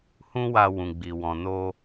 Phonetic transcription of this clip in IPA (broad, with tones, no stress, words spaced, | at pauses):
hũ˦wa˧ wũ˨ɡ͡bi˨ wɔ̃˨no˧